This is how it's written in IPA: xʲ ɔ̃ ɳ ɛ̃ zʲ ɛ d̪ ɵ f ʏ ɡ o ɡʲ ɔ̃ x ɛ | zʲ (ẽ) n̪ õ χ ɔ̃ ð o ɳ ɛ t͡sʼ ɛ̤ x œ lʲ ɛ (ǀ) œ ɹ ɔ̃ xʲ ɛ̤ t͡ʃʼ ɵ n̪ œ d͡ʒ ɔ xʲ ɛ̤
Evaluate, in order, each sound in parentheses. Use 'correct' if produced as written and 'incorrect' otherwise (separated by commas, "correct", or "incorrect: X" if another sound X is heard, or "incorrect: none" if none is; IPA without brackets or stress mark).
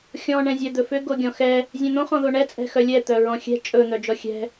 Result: incorrect: ɛ̃, incorrect: t̪